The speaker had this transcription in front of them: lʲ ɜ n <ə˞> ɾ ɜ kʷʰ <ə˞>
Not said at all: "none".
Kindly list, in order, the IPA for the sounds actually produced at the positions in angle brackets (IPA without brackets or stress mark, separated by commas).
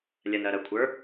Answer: ɜ, ə˞